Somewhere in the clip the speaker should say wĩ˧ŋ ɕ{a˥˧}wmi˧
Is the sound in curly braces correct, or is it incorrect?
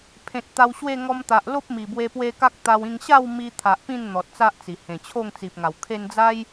correct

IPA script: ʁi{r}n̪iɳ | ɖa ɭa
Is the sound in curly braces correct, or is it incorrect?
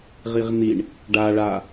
incorrect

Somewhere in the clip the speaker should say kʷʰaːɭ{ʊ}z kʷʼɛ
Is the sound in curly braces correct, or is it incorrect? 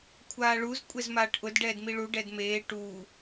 incorrect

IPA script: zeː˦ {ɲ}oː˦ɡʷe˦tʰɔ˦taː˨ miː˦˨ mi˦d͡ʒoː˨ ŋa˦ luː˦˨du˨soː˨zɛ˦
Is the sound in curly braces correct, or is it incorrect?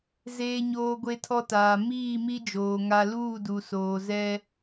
correct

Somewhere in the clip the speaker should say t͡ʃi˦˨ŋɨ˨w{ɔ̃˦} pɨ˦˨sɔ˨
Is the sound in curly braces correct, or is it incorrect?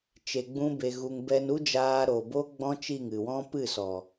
correct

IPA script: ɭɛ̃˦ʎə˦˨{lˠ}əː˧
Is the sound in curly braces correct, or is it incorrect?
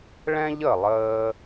correct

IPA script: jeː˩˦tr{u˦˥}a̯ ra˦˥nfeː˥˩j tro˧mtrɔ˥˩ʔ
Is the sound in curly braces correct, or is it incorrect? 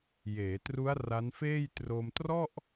correct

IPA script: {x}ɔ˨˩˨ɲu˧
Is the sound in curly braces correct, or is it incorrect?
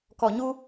incorrect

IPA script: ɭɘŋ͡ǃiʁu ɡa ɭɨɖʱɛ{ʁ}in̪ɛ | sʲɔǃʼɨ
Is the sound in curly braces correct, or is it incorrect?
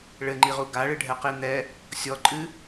incorrect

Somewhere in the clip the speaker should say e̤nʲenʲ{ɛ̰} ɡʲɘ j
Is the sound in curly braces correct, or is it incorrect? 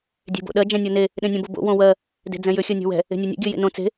correct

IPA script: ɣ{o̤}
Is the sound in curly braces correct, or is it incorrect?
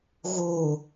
incorrect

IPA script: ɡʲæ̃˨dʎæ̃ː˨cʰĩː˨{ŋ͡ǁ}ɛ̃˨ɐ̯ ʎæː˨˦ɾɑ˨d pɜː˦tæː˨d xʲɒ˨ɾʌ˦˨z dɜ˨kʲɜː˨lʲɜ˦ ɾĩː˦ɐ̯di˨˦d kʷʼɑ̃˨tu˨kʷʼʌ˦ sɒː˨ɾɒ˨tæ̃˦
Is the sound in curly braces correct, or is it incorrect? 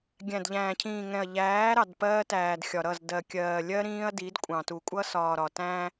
incorrect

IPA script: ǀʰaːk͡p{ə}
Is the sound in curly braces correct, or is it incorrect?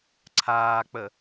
correct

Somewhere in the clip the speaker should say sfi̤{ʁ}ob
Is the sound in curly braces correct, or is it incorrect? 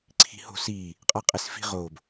correct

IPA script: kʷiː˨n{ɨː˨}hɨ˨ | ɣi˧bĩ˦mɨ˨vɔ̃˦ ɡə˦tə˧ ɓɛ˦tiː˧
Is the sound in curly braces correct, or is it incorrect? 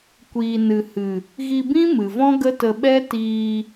incorrect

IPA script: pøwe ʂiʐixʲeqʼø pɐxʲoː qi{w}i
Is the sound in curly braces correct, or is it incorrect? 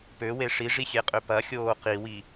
correct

